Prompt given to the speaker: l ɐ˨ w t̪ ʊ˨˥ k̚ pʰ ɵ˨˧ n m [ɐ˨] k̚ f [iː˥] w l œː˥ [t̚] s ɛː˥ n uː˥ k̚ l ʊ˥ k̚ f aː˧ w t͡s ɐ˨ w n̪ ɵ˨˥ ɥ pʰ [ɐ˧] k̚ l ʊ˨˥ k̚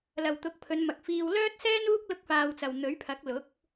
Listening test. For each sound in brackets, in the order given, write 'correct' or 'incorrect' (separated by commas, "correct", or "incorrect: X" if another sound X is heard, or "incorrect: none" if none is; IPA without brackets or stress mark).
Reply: correct, incorrect: iː˧, correct, incorrect: ɐ˨˥